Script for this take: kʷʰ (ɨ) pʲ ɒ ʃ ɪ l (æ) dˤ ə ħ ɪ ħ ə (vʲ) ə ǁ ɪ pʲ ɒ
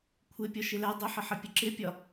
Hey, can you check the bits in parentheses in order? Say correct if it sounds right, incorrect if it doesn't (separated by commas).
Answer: incorrect, correct, incorrect